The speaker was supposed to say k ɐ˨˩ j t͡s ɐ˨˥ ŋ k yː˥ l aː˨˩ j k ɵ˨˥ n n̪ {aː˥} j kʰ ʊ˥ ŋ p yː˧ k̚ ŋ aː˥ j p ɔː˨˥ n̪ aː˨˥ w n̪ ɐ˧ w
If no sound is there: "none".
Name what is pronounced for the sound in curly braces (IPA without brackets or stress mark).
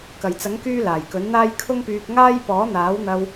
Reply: aː˥